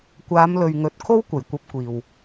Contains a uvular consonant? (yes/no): no